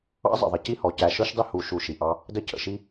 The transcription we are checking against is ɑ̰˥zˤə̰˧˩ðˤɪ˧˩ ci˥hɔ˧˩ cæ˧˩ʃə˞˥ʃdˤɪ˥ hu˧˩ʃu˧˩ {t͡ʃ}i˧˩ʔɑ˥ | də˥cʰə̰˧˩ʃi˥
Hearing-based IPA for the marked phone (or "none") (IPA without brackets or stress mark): ʃ